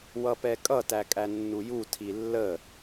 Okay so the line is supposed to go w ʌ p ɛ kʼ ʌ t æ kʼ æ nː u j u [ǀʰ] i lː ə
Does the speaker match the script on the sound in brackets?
no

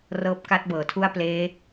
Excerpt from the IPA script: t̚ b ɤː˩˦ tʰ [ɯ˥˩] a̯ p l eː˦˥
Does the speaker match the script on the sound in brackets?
no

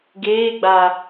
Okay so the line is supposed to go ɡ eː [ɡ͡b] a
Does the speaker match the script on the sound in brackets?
yes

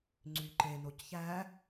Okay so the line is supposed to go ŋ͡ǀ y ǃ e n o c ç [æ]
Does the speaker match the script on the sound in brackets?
yes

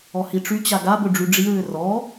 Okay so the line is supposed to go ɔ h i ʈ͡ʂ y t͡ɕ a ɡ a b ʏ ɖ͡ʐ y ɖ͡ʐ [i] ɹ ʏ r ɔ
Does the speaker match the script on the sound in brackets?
yes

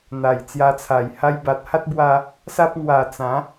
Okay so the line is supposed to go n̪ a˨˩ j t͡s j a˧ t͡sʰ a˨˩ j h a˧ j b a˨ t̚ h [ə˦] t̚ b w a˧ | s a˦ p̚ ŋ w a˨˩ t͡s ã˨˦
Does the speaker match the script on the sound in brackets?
no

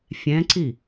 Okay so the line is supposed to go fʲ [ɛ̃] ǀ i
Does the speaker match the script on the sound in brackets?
yes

